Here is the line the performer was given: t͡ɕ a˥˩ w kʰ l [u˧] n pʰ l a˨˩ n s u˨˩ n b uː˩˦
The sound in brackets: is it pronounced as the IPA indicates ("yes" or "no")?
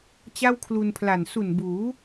yes